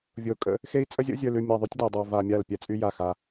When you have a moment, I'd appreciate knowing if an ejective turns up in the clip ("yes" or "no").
yes